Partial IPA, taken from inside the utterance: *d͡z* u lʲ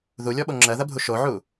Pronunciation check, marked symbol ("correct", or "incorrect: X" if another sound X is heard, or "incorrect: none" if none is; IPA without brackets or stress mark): incorrect: ð